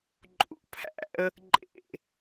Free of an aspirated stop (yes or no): no